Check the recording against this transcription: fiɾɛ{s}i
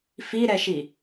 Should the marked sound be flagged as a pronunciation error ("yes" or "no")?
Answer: yes